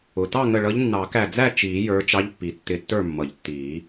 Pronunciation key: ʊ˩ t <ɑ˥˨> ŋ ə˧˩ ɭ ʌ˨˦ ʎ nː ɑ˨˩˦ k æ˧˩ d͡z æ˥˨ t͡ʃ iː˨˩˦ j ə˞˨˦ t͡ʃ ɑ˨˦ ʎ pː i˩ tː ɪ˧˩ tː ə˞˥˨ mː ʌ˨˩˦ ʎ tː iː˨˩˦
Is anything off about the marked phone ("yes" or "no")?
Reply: no